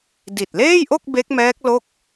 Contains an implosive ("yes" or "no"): no